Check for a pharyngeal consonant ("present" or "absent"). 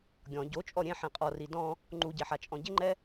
present